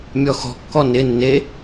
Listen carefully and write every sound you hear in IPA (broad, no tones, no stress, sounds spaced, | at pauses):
mʲ ɔ x ɔ̤ kː ɔ n ɪ nː e